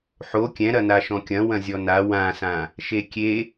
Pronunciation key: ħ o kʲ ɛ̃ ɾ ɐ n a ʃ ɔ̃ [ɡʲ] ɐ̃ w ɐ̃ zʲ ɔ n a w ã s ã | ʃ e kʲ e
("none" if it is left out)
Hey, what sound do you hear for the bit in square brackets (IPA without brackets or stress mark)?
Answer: kʲ